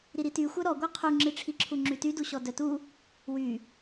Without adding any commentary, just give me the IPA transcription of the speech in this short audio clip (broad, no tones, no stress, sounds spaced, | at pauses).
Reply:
ɾ i ɾ i t y xʷ œ ɾ ɔ ɡʷ œ qʰ u ŋ͡ǁ i ʈ͡ʂʰ i ǁʰ u ŋ͡ǁ y t y d u ɕ ɔ d œ t u | w y